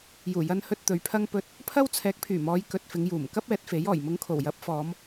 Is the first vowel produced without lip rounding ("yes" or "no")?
no